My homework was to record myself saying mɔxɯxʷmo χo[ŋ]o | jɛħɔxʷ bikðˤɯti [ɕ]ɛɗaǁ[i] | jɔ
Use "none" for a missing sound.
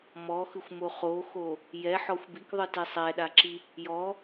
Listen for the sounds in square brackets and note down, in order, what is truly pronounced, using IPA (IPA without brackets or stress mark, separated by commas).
x, sˤ, i